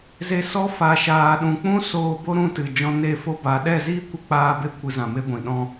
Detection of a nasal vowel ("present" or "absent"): present